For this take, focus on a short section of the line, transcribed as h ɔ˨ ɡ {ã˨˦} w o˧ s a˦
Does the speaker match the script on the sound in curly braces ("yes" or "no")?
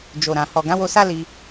yes